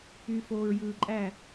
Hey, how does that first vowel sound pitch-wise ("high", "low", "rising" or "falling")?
low